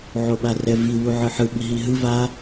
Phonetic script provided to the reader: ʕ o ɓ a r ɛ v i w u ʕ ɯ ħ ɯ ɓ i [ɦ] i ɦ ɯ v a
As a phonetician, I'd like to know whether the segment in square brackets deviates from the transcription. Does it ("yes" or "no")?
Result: no